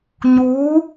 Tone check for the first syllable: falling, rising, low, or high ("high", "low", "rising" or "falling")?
rising